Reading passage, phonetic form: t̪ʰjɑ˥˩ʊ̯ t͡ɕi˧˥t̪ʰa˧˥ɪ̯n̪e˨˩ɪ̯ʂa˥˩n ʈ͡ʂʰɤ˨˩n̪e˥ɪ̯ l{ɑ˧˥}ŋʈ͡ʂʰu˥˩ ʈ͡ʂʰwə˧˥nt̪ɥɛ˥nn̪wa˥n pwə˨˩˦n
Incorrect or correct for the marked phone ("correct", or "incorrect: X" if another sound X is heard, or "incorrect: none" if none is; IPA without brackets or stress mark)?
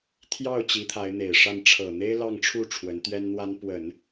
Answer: incorrect: ɑ˥˧